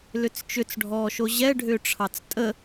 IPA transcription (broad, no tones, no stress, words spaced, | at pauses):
lʏt͡st͡ʃʏt͡sɖʱɔːʃo ʑɛ ɖʱʏːʈ͡ʂʰɑt͡stʼə